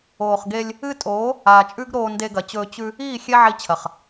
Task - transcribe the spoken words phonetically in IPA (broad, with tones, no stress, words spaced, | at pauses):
oː˨χɡe˧lʲ | ɨ˦ tʼoː˨˦ | aː˨t͡ʃʼʉ˦ɡɾoː˧ nde˧ɡɐ˨t͡ɕɵː˧ t͡ɕʉ˧ | iː˦˨ xʲe˦ʕi˧t͡ɕʰɐ˨χ